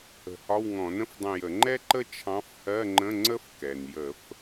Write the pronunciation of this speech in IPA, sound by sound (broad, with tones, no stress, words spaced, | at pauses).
ə̤˧˩˧hɒ˧˥˧wŋɔ̃˧˩˧nə̃˥f dˤə̃˦˨jə˧˩˧ ŋ͡ǃɛ˥ǃə˥ t͡ʃʰɑ̃˧˥fhɜ˧˥˧ŋ͡ǃə̃˧˥˧ ŋ͡ǀə˥fkɛ˩njə˧˩˧f